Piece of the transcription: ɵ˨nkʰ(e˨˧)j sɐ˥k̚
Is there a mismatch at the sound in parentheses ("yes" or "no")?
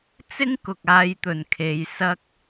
no